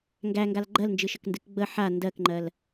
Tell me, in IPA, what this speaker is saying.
ŋ ɡ æ ŋ ɡ a l ɡ͡ǃ ɜ l n d͡ʒ ɨ ʃ ə k n d ɨ k ɡ͡b ə ħ a n d ɜ k ŋ͡ǃ ɜ l

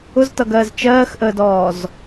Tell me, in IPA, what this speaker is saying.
ʊ z t ʌ ɡ ɜː z t͡ʃ ɜː x ʔ əː d ɔː z

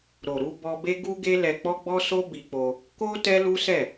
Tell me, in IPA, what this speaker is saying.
ɾ o˨ ɾ u˧ b ɔ˧ b e˦ ɡ u˦ ɡ e˦ l ɛ˧ k͡p ɔ˦ ɡ͡b ɔ˦ s o˦ b i˧ k͡p o˧ | k o˦ t ɛ˦ l u˦ s ɛ˦˨

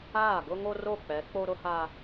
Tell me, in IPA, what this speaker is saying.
aː˦˨ ɡ ʊ˦ ŋ o˦ r o˦˨ k͡p ɛ˨˦ k͡p o˦ ɾ ʊ˦ h a˦

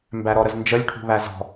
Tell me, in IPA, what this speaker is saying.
m b æ ɾ ɔ ɾ ə z n d͡ʒ ə lʲ ʈʰ ṳ β æ z ɔ̤

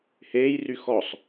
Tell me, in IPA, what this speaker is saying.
h eː j r y x ɔ sˤ

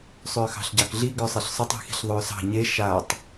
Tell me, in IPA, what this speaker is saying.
sˤ ʏː x ɑ̤ ɬ ɟ ɑ k ɮ i ɡ ʏː sˤ e ɬ sˤ ʏ tˤ i̤ x i̤ ɬ ðˤ ʏː s ɑ̤ ɲ e ʃ a tˤ

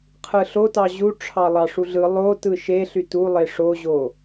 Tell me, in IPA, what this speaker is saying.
qʰ ɯ ɬ o t ɑ ʑ u ʈ͡ʂʰ ɑ lˠ ɑ ʂ u ɮ ɯ lˠ o t ɯ ʃ e ɬ y t u lˠ e ʂ o ʑ o

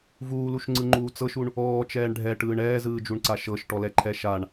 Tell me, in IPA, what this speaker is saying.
v uː l u ʃ ŋ͡ǀ ɯ ŋ͡ǃ uː t͡s ɤ ʃ u ɳ | ɔː t͡ʃ ɛː ɳ ɖʱ ɛ ʈ ɯː ɳ ɛː z ɯː d͡ʒ u ɳ ǀ a ʃ ɤ ʃ ʈ ɔ l ɛ ǃʰ ɛ ʃ a ɳ

